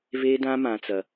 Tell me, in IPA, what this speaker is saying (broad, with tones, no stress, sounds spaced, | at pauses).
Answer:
v e˦ d ã˦ m ã˦ t͡s ɐ˦